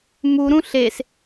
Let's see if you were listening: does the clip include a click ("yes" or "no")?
no